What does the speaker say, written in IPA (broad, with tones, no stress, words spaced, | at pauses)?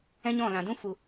ɛ̃˦ɲɔ̃˦˨lã˨dũ˦ fu˧